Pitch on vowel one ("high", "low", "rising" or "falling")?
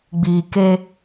low